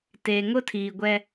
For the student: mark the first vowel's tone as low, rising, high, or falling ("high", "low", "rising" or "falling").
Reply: low